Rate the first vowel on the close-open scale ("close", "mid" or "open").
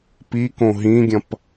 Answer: close